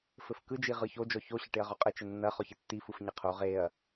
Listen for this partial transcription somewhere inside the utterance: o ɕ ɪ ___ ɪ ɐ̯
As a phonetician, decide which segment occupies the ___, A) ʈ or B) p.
A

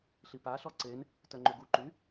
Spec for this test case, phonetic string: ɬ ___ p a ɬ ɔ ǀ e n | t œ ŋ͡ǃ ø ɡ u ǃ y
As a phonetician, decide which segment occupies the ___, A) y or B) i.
B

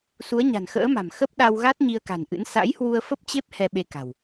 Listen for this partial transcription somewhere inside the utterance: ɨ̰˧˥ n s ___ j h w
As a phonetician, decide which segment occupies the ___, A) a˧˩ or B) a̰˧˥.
B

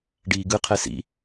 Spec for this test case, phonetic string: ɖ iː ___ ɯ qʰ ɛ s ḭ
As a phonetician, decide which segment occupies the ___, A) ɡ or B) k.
A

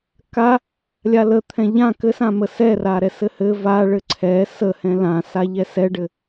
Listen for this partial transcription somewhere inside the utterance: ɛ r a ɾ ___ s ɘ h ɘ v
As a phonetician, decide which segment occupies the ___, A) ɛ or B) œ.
A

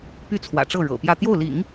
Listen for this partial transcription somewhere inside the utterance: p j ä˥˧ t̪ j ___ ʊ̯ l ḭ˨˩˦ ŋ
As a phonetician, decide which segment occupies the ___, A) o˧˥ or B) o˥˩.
B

